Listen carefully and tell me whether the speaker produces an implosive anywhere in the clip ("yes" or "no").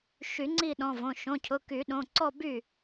yes